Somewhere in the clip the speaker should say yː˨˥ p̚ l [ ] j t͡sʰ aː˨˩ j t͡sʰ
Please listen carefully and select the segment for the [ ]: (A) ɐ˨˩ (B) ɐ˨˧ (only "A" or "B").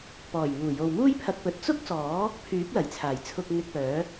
A